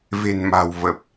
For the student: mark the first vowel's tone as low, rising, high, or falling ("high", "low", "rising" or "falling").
low